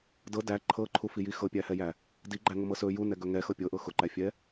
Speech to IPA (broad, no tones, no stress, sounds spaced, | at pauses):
d ɤ d æ ǃʰ ɤ ǃʰ u f i j i x ɤ pʲ æ h ɛ j æ | d i ɡ͡ǃ æ ŋ ʊ m ɤ s ɵ j u n ɛ ɡ ɵ ŋ ɛ x ɤ pʲ ɤ ʔ ɤ x ʊ ǃ æ fʲ ɛ